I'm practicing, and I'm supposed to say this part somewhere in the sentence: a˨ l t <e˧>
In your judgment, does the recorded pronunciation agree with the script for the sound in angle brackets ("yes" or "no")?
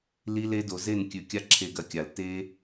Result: no